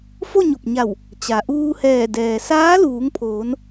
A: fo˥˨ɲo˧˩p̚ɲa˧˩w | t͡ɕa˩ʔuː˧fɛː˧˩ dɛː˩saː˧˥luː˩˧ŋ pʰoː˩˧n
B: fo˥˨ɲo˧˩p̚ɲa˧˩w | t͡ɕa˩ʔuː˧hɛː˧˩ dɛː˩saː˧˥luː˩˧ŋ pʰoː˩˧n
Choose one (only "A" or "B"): B